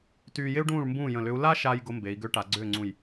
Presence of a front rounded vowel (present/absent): present